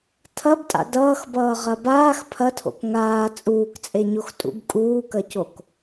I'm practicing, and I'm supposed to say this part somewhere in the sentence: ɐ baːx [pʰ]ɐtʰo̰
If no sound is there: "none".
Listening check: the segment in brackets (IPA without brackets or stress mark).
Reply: pʰ